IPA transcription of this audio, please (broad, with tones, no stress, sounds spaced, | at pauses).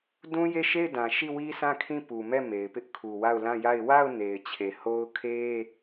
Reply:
d ũ˦ j e˦˨ ʃ e˦˨ ɪ̯ d ã˨ ʃ i˦˨ w i˦ s ã˦˨ kʰ ĩ˦˨ p u˨ m ɛ˦˨ m e˨ ɪ̯ p ɪ˦ ʔ kʰ u˨ w a˦˨ ʊ̯ l ã˦˨ j a˦˨ ɪ̯ w a˦˨ ʊ̯ n e˨ ɪ̯ t͡ɕʰ e˨ h o˦ ʊ̯ kʰ e˦